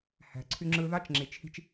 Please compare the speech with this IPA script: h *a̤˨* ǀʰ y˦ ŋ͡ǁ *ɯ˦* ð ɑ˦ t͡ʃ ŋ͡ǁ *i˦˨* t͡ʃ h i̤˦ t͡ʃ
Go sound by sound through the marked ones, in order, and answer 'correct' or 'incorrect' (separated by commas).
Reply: incorrect, correct, incorrect